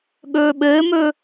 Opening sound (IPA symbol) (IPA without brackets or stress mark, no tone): ɠ